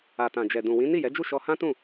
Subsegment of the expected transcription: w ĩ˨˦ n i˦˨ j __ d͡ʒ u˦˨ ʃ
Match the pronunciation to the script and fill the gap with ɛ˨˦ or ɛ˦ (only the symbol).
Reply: ɛ˨˦